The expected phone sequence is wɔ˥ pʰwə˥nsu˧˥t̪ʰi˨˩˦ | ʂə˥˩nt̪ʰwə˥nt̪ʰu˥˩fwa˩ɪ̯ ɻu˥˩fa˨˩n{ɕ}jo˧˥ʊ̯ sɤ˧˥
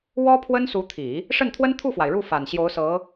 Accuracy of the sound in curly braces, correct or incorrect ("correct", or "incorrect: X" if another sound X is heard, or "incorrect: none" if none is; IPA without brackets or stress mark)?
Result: correct